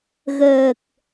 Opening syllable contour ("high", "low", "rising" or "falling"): low